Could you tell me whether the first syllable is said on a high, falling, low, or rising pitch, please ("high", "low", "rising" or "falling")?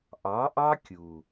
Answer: rising